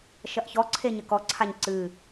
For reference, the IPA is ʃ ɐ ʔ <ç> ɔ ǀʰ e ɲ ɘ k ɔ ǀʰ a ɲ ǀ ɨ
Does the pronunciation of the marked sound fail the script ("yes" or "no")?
no